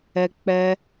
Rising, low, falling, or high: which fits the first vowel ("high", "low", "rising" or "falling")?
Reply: high